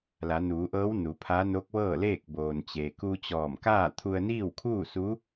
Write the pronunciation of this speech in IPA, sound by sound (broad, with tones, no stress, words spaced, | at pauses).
la˩˧nuː˩˧ʔɤː˧˥w nu˩˧pʰa˧˥ no˧˥k̚ʋɤː˥˨leː˥˨k̚ boː˩nt͡ɕeː˩ ku˧t͡ɕɔː˧˩mkaː˥˨ t̪ʰu˧ə̯niː˥˨wkʰuː˥˨su˧˥